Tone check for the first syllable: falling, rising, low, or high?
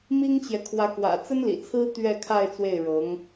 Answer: high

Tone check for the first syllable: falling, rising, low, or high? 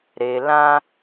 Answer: low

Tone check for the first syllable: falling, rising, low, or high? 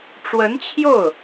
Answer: rising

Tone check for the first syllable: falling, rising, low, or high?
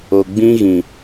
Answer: low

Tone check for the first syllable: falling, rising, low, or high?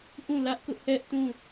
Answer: falling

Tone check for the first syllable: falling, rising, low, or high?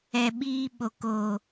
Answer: low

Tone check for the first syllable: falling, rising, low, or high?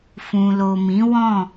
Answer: low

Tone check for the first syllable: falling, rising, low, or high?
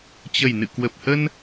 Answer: low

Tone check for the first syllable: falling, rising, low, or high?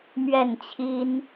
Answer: falling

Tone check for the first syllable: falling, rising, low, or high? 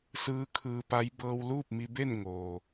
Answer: rising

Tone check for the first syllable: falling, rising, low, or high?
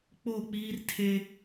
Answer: falling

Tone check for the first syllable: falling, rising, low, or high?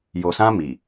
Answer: low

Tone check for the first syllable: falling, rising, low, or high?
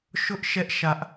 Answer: high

